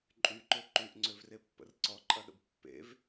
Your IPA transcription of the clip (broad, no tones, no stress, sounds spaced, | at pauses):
ǃʼ y ǃ ø ǃ y ʔ ŋ͡ǀ ø v r e pː ə̰ r ǀ ɔ ǃʼ ɐ ɗ ə̰ b pː ḛ v